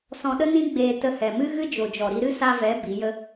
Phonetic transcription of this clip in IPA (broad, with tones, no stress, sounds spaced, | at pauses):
s ɔ̃˧ ɗ ə˦ n ĩ˦ ɡ͡b eː˧ t ə˧ h ɛ˨ m ɨ˦ ɣ ɨ˦ d͡ʒ o˨ d͡ʒ ɔ˨ ɾ i˧ ɾ ɨ˦ s a˧ v ɛ˨˦ b i˨˦ j ə˦